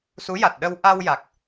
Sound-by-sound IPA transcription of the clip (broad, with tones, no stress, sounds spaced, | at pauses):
s u˧˥ j a˨˩ t̚ ɗ ə˧ w ʔ a˧ w j a˨˩ k̚